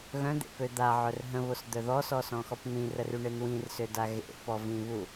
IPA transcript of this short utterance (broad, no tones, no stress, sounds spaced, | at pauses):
ɣ œ̃ d̪ ḛ p ø d̪ a ʕ œ r ɦ ə̃ β o s d̪ œ ð ɔ s ɔ s ɔ̃ x ɔ p n̪ ĩ r ə r y ɳ e n w ĩ r s ø d a ɣ ḛ p ɔ v ĩ β u